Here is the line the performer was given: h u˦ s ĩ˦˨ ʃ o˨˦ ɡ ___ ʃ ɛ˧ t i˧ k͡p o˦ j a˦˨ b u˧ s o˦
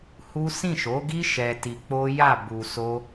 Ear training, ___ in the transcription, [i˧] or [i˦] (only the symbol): i˦